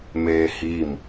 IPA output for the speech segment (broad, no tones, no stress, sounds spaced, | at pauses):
m eː h i m